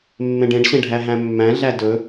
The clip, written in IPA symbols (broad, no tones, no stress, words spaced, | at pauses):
mːẽɖẽɖɕẽ ɖʱæɦæ̃mːæ̃ɮæ dɵ